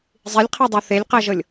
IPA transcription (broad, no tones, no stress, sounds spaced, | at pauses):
zˤ i lʲ qʰ ɤ dˤ o θ e lʲ q ɜ ʒ ɤ lʲ